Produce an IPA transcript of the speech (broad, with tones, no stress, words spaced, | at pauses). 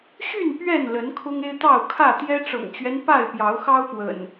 ɕy˥˨n pɥɛ˥˨nlə˨˦n kʰʊ˦ŋe˦ɪ̯t̪ɑ˥˨ʊ̯ kʰä˥˨ t̪jɛ˦ ʈ͡ʂɤ̰˨˩ŋt͡ɕɥɛ˦n pa˥˨ɪ̯pjɑ˨˦ʊ̯xɑ˦ʊ̯pwə̰˨˩n